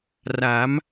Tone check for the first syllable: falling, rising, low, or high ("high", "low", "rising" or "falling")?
rising